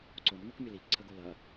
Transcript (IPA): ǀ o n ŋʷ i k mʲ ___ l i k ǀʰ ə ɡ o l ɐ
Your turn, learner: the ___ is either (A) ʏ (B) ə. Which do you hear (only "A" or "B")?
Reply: B